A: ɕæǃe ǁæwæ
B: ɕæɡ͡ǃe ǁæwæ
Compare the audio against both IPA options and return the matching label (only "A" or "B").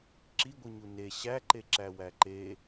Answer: A